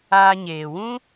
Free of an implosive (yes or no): yes